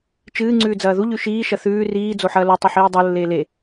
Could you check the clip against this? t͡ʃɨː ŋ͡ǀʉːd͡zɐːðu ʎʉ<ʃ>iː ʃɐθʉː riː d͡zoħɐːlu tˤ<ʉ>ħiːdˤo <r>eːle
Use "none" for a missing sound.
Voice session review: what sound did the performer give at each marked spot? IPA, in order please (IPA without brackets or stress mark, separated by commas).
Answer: ʃ, ɨ, lː